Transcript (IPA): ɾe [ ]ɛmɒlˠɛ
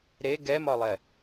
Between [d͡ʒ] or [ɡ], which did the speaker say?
ɡ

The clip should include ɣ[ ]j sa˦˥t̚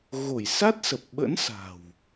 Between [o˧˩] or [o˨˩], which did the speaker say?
o˧˩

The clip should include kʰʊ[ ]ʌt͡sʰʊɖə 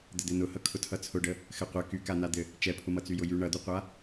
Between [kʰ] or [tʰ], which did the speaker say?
tʰ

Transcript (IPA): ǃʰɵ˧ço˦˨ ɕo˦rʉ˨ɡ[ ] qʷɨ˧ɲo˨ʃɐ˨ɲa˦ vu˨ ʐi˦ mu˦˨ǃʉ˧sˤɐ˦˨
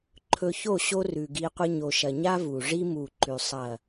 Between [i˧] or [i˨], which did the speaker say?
i˧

